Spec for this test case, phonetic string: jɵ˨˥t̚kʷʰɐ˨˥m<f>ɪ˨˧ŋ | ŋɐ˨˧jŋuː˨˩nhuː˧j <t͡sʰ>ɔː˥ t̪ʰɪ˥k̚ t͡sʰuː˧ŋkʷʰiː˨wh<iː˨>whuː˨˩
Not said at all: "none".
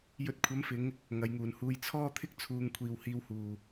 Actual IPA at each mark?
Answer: f, t͡sʰ, iː˧

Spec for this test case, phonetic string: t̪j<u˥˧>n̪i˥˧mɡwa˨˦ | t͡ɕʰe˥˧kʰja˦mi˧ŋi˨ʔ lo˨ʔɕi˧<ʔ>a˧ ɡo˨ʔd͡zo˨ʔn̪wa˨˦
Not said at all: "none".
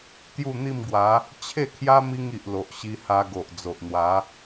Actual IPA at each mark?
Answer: u˥˧, h

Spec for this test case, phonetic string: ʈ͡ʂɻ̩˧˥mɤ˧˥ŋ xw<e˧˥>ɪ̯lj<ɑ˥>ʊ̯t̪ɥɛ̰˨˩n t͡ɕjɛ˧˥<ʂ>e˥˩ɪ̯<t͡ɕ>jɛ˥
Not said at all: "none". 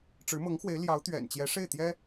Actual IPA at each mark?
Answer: e˧˥, ɑ˧˥, ʂ, t̪

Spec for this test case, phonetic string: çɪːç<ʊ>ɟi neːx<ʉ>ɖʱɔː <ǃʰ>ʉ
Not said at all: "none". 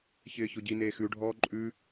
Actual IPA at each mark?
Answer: ʊ, ʉ, ǃʼ

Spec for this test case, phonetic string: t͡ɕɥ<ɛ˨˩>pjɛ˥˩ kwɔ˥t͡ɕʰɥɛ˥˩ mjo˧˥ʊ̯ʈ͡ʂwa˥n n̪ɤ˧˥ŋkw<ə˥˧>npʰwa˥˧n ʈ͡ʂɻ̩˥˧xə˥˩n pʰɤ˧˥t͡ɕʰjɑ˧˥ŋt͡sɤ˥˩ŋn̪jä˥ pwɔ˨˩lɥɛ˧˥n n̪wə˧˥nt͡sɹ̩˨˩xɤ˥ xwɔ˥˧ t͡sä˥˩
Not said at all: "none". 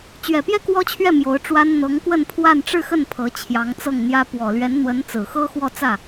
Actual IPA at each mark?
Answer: ɛ˨˩, ə˥˧

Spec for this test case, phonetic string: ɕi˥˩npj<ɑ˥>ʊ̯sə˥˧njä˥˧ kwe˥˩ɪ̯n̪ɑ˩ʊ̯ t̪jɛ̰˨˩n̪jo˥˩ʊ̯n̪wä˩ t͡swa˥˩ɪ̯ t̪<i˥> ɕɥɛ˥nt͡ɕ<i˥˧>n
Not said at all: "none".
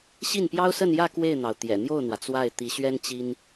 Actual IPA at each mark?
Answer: ɑ˥, i˧˥, i˥

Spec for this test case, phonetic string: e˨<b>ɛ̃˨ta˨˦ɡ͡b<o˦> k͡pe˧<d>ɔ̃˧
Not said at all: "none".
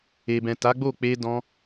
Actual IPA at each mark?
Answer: b, o˦˨, d

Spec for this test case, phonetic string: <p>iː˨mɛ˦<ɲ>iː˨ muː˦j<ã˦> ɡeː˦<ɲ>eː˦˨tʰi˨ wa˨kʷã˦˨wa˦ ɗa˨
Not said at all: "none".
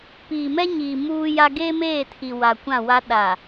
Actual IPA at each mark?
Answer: p, ɲ, a˦, m

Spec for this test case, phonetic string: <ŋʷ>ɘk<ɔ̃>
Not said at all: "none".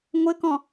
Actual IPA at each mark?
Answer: ŋʷ, ɔ̃

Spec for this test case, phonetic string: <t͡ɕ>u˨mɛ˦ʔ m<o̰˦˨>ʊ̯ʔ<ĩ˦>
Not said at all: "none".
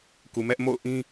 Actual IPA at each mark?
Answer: k, o̰˦˨, ĩ˦

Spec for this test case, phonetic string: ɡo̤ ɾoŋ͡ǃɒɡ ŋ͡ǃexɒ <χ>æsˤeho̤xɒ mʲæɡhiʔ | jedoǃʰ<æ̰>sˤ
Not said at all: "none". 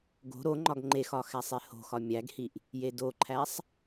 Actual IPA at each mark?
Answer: x, æ

